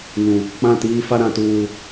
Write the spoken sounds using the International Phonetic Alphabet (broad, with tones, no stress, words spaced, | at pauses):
ŋũ˨ | k͡pã˦˨tiː˦ fa˦ɾã˨tuː˨